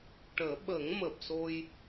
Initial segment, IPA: ʈ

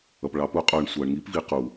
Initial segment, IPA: ʌ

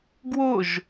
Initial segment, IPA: ɡ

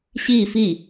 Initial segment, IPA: ɕ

